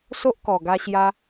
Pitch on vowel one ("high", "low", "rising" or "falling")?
high